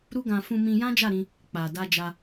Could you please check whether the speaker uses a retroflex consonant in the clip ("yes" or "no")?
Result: no